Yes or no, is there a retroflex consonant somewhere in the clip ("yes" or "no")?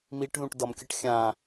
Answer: yes